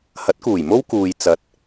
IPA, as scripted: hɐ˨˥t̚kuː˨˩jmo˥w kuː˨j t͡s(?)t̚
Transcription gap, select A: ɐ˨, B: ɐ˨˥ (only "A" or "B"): A